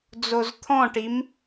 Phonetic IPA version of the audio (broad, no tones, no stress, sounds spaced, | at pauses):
d͡z o z t̪ʰ ɔ̃ ʈ i m